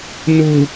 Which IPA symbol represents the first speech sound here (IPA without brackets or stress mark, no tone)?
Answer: n